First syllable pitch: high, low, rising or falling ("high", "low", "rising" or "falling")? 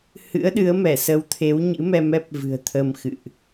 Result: rising